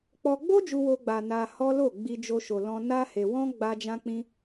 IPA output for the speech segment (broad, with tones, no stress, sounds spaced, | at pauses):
k͡p ɔ˧ ɡ͡b o˦ d͡ʒ u˧ w o˧ ɡ͡b a˨ n a˧ h ɔ˦ l o˦˨ ɡ͡b i˧ d͡ʒ o˧ ʃ o˨ l ɔ̃˧ n a˦ h e˧ w ɔ̃˦ ɡ͡b a˦ d͡ʒ ã˦ k͡p ĩ˦